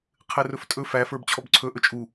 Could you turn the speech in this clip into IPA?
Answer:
qʰ ɘ r ɵ f tʼ ɵ f æ f ə˞ b t͡ɕʰ ɔ b ǀʰ ɵ ʔ ɵ t͡ʃʼ u

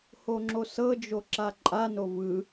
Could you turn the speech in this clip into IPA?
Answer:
h o ŋ͡ǁ o s ɤ d͡ʒ o ǁ a ǃʼ a n o v ɯ

